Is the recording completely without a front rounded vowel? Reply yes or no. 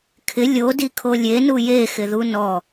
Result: yes